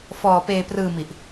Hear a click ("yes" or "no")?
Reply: no